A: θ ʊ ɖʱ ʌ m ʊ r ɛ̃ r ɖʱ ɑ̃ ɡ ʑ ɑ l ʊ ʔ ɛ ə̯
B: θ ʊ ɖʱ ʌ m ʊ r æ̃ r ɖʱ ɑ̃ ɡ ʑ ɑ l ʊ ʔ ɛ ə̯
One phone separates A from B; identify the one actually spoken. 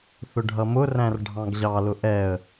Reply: B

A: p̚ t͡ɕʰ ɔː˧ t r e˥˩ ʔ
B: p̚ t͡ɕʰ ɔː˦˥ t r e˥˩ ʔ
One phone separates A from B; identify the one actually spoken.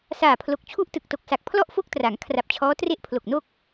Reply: B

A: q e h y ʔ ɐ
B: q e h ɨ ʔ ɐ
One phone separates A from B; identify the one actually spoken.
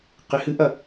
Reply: B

